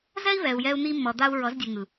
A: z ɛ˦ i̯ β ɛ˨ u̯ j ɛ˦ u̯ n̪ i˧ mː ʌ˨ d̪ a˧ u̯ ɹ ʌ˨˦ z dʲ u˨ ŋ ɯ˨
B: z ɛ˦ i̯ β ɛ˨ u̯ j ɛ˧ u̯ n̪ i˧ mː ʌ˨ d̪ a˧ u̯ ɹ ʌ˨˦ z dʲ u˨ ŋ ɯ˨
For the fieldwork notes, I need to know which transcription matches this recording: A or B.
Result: B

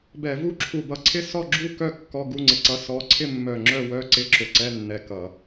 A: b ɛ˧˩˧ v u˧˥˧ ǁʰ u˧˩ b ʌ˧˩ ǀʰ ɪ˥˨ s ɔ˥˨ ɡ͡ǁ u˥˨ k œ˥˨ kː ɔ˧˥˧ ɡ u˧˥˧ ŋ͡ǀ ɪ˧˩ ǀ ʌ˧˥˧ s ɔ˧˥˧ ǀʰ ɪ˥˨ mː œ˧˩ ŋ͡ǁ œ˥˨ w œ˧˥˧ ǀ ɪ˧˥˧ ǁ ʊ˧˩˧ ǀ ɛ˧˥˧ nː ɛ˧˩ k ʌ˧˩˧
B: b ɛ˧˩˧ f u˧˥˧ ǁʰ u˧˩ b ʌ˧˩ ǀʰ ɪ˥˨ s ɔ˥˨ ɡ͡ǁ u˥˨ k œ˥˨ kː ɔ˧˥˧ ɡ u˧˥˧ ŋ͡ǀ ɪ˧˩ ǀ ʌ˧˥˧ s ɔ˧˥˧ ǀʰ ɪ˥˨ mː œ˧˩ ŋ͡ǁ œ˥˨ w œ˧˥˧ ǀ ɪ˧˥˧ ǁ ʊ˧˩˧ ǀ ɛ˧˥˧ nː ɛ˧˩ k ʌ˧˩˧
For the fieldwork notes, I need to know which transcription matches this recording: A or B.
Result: A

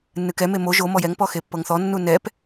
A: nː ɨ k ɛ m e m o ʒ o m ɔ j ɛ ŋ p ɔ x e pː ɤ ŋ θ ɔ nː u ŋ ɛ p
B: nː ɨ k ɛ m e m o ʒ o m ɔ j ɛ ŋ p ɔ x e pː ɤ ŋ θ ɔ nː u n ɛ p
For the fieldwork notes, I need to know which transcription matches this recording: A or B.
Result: B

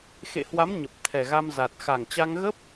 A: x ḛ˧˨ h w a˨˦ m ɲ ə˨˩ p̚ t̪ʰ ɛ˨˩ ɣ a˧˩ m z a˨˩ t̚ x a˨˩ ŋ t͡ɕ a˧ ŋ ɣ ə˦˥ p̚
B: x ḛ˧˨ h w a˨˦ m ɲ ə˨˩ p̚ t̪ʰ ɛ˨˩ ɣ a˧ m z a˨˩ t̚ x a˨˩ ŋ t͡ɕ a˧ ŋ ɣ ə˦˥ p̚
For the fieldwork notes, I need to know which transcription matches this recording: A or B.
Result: B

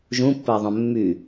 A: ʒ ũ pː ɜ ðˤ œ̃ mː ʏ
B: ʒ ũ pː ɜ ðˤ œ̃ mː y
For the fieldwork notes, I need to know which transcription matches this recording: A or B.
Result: B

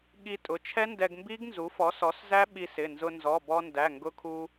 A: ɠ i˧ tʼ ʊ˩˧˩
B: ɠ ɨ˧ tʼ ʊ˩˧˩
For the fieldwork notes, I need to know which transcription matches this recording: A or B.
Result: A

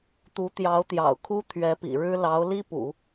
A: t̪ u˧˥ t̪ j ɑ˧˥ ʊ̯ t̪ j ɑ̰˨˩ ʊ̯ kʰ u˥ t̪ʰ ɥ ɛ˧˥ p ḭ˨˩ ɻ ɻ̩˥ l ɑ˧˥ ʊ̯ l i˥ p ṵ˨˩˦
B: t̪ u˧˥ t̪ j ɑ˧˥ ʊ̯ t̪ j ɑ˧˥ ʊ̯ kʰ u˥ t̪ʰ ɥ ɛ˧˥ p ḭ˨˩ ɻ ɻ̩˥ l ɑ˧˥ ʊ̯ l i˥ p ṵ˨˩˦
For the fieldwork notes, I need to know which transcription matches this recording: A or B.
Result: A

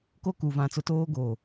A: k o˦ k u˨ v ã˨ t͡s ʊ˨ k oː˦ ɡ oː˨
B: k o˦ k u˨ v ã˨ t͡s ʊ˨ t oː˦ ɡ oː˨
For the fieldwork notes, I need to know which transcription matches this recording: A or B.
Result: B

